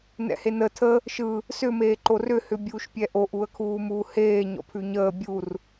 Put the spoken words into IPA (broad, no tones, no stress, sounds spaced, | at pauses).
n ɛ̰ h e n ə tʰ ə | ʃ ɯ | s ʏ m eː ǃ o r ʏ h ʏ bʲ uː ʃ pʲ ɛ ʔ o ʔ u ə̯ kʰ uː m uː h eː ɲ ɔ̰ pʰ ʉ ɲ əː bʲ u r